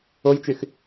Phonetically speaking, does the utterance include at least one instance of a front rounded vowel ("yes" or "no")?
yes